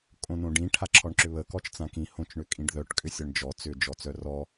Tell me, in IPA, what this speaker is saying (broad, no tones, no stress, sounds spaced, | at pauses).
kʼ õ n õ ɖ ĩ ʈʰ a ǁʰ ɔ ɳ ǁ ʏ β ə k ɔ t͡ʃ t͡s ã k ĩ h õ t͡ʃ ɳ ʏ kʼ ĩ ɖ ð œ ʈ kʼ ʏ sʲ ɔ ɳ d͡ʒ ɔ t͡s ʏ d͡ʒ ɔ t͡s œ r ɔ